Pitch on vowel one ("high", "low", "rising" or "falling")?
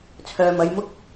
low